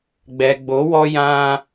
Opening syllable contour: low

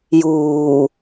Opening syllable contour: low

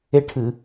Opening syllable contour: high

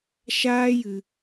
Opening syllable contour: high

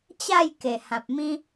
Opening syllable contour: falling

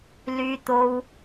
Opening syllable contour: high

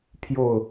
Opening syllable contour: falling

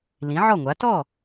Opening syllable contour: rising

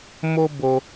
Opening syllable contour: high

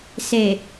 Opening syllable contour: low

